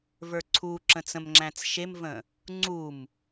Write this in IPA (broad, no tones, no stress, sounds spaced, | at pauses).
v ə˞ ǀʰ u ǁ ə̃ t͡s ə̃ m ŋ͡ǁ æ̃ t͡s ʃ e m v ə̃ | ŋ͡ǀ u m